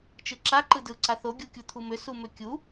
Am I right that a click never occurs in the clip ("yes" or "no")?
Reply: no